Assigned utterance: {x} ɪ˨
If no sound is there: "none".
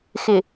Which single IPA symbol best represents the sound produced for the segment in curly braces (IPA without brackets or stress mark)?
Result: x